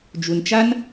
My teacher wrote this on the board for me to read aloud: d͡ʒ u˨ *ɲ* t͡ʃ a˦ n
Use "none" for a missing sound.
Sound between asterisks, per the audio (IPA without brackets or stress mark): n